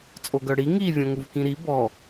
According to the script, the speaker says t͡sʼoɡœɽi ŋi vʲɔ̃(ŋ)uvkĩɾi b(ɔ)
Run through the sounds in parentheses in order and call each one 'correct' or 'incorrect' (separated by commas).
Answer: correct, correct